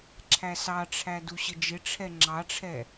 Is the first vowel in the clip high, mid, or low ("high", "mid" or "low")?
low